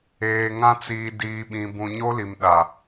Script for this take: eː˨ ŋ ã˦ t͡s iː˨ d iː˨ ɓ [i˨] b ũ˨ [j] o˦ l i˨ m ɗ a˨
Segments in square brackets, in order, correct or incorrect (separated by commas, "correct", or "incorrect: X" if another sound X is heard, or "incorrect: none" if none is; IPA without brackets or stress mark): incorrect: ĩ˨, incorrect: ɲ